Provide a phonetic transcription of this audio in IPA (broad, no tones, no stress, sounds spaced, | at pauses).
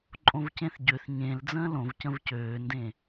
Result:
ǃʼ õ v c ẽ θ ɟ ø θ ɲ ẽ l d͡z ə̃ː l õ v c ə̃ v c øː n d ẽ